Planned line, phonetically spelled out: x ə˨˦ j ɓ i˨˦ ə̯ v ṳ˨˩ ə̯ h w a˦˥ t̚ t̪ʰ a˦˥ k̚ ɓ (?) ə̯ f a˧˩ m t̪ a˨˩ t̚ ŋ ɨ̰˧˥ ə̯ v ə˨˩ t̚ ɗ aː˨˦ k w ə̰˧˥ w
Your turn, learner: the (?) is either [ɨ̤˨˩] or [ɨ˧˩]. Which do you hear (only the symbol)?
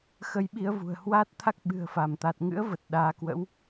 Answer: ɨ̤˨˩